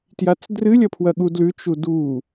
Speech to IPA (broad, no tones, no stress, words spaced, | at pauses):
tjat͡sdrɨ lʲɐpʰwɐɠudlʉ t͡ʃudu